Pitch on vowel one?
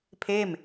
falling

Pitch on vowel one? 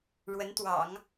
rising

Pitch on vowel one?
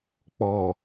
low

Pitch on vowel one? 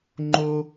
high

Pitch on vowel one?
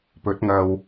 rising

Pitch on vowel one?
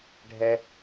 high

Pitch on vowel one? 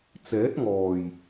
rising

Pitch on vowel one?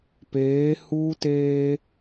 rising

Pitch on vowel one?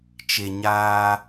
low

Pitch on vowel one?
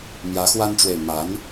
rising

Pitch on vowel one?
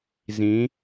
rising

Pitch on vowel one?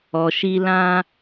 low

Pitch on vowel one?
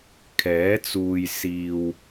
rising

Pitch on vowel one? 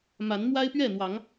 rising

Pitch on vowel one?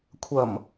low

